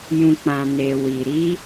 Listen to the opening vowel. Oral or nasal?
nasal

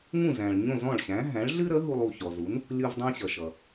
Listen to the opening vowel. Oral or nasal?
nasal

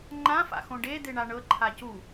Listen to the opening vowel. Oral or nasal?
nasal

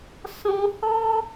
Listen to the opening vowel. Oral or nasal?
nasal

